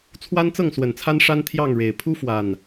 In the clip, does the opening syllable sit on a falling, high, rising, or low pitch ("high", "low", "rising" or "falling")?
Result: high